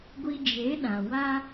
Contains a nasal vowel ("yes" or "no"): yes